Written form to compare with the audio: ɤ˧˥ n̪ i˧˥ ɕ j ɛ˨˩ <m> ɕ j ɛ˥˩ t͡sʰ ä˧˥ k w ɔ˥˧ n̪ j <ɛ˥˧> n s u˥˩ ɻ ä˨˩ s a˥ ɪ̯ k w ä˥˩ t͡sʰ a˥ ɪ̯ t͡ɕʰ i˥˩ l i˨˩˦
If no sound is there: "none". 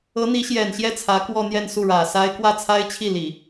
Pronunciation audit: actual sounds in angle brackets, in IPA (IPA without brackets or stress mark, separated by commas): n, ɛ˥˧